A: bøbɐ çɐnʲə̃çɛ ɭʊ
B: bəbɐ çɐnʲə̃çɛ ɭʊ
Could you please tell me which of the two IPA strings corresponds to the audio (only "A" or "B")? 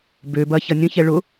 A